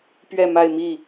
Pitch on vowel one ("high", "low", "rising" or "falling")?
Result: falling